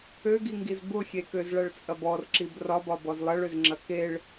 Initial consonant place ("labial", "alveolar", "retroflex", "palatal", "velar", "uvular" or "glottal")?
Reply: velar